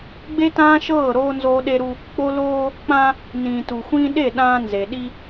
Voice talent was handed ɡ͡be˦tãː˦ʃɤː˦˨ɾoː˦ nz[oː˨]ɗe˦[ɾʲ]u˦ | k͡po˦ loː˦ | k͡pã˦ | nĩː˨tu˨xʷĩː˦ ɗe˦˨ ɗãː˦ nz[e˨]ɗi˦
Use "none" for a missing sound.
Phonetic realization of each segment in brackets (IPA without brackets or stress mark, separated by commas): oː˦, ɾ, e˨